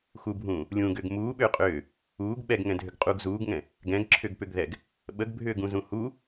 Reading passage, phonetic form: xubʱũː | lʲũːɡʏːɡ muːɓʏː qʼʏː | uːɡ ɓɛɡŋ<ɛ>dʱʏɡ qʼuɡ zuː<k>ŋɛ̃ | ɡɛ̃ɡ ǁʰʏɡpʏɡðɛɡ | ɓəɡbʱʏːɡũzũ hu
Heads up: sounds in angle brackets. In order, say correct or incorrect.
incorrect, incorrect

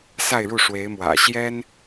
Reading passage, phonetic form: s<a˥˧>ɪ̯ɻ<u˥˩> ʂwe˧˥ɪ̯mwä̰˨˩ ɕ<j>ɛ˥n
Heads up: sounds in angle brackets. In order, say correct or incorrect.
correct, correct, correct

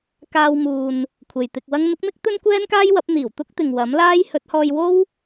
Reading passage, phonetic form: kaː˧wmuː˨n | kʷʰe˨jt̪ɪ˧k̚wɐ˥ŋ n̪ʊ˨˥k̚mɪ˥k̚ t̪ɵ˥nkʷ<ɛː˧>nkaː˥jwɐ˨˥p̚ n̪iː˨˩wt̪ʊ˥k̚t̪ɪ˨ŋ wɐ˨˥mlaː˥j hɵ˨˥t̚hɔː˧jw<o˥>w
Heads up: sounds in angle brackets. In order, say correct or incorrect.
incorrect, correct

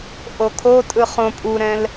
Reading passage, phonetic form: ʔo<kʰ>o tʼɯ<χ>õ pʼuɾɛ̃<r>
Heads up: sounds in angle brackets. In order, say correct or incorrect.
correct, correct, incorrect

